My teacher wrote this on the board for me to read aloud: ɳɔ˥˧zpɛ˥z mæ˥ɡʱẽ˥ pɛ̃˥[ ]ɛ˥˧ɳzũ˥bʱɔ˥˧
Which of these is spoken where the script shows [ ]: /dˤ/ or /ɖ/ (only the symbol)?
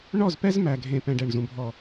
ɖ